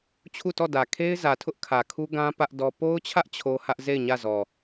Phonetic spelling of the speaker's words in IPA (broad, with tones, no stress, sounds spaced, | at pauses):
t͡ɕʰ u˦˨ t ɔ˦˨ d ä˨ kʰ e˦ ɪ̯ z ä˨ tʰ ʊ˦ ʔ kʰ ä˨ kʰ u˦ ɡ ã˦ p ä˦ ʔ d ɔ˦ p o˦ ʊ̯ t͡ɕʰ ä˦ ʔ t͡ɕʰ o˦ h ä˦ ʔ z e˦˨ ɪ̯ ɲ ä˦˨ z ɔ˨